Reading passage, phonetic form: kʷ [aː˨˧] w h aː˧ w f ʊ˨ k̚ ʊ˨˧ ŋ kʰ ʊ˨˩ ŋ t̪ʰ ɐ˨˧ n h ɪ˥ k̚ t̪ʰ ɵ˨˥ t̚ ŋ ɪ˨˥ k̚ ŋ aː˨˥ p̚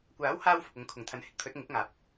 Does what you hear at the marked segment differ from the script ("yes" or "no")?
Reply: yes